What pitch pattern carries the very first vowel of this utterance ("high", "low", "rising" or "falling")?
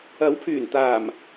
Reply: rising